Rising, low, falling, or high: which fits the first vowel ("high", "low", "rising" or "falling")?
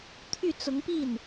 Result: falling